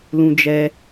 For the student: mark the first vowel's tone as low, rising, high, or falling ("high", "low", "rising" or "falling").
high